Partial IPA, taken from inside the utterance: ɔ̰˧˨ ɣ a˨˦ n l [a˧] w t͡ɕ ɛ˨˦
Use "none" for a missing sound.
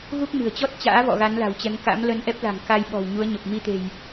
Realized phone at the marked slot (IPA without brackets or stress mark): a̤˨˩